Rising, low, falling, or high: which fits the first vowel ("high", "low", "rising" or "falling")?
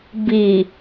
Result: low